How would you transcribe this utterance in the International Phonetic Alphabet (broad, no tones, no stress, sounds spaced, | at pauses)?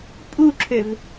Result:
pʼ u ǁʰ ø v